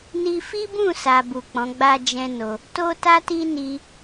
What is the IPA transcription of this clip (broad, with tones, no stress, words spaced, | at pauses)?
ni˧fi˦bũ˦˨ sa˨bu˨ k͡pɔ̃˨˦ɡ͡ba˦d͡ʒɛ̃˦no˧ | to˦ta˦ ti˦ ni˦